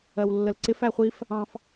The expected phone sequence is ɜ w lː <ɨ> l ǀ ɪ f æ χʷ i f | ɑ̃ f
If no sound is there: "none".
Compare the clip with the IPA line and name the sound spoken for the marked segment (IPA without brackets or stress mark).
ə